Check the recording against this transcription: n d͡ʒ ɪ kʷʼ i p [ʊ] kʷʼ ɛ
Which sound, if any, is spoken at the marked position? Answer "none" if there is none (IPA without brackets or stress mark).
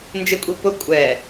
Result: ʊ